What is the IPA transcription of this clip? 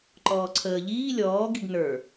ǃ ɔː ǀʰ əː ʎ iː lʲ ɔː ɡ i ɡ n ə˞

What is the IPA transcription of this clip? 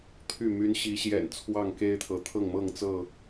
t̪ʰ y˥˨ m y˦ n ɕ i˨˦ ɕ j ɛ̰˨˩ n t͡sʰ w ɑ˥˨ ŋ k e˦ ɪ̯ t̪ʰ ɤ˨˦ t̪ʰ ɤ˥˨ ŋ m ɤ˥˨ ŋ t͡s ɤ˥˨

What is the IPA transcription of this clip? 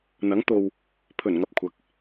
n̪ ɐ˨˥ ŋ t̪ o˨ w | pʰ ɵ˨˩ n ŋ ɐ˧ p̚ kʷʰ ɐ˨˥ k̚

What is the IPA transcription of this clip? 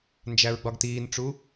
n d͡ʒ æ ɹ ɡ͡b ɒ ɡ t iː n ʈ͡ʂ u

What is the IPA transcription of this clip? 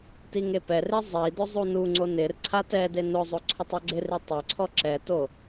t i ŋ e p ɛ r e zˤ i d ʊ zˤ u n u ŋ͡ǀ o n ɪ r ǀʰ a t ɛ d e n ʊ zˤ o ǀʰ o tˤ ɔ ɡ͡ǀ ɪ r i tˤ ɛ ǀʰ ɔ ǁ ɛ t o

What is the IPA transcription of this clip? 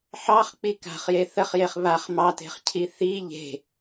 ħ ɑ χ k͡p i k a̤ χ j e θ ə χ j e χ β a χ m ɑ t e̤ χ cʰ i θ i ʎ e̤

